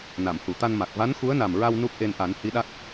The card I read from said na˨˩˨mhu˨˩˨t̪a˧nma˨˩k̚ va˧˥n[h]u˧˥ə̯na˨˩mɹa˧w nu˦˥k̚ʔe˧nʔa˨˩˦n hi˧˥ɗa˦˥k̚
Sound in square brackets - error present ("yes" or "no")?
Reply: yes